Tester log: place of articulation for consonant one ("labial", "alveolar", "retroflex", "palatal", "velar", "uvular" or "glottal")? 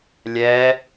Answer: alveolar